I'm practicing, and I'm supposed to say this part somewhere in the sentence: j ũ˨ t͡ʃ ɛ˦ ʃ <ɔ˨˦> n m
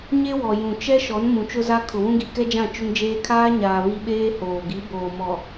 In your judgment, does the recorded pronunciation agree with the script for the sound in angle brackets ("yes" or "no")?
yes